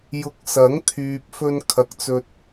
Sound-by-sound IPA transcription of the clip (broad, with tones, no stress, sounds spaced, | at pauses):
j ʊ˨˥ k̚ s ɐ˨˥ ŋ t̪ʰ yː˨ p̚ f ɵ˧ n kʰ ɐ˨ k̚ t͡s ɵ˨ t̚